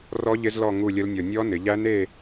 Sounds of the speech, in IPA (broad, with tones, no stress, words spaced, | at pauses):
rɔ˦˥ ʎɪ˦˥zlɔ˥˧ ŋu˥˧lʲə˦˥lnʲɔ˧ nʲɔ˦˥nɪ˩˧ʎæ˦˥ne˥˧